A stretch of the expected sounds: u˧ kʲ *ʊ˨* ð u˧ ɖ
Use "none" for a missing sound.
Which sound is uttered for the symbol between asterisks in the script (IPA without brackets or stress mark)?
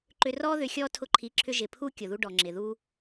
ʊ˨